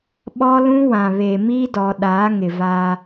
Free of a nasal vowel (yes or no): no